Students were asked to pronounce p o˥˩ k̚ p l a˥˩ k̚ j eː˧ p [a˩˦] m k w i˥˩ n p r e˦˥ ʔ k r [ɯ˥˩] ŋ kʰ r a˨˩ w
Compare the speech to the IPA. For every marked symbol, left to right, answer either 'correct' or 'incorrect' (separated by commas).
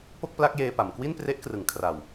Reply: correct, incorrect